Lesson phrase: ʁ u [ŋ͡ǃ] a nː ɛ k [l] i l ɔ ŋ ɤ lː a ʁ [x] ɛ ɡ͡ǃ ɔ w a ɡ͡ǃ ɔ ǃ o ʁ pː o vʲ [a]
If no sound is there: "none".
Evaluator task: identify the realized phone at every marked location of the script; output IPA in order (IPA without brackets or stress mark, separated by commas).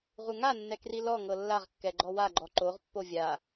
ŋ, r, kː, a